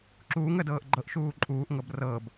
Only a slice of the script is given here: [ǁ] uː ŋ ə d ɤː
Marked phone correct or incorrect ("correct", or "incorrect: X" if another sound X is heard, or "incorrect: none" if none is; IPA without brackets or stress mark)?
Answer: correct